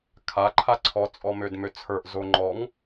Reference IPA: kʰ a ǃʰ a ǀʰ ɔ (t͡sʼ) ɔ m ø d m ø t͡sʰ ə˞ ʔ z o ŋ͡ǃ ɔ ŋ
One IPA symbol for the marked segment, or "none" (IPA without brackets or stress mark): t͡sʼ